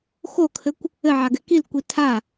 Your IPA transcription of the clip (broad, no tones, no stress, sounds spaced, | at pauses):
x o kʰ ɘ kʷ | ɘ ʕ a ɡ ɛ k i l kʷ i tʰ a